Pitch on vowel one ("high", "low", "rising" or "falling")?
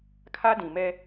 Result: high